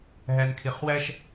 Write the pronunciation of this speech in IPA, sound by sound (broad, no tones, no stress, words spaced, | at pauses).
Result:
ɦænkʰeχwæʃ